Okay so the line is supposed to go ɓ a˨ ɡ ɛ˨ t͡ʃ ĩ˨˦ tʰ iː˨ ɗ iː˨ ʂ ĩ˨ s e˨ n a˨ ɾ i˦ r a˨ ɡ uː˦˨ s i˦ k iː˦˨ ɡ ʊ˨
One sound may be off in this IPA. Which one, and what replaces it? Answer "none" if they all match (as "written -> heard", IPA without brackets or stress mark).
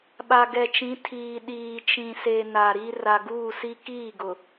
ʂ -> t͡ʃ